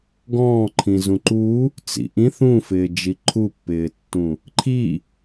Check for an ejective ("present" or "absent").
absent